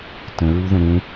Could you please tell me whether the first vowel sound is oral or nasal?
nasal